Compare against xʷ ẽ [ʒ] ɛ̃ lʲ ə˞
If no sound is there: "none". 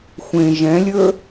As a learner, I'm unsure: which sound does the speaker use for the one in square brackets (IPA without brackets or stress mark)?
ʒ